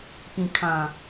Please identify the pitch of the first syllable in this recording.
low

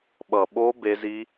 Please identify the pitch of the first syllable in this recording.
low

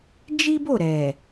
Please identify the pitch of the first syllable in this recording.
high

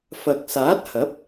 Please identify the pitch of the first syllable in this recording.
low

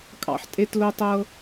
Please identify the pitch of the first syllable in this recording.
high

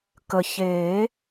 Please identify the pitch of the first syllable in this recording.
low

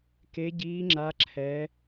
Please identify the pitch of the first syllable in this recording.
high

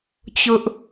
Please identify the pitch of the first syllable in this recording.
high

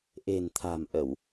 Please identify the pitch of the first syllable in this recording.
low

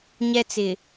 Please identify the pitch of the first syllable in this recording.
high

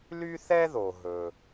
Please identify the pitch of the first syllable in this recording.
high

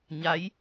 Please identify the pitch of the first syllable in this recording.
rising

